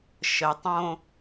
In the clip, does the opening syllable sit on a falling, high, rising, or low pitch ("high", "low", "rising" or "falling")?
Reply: low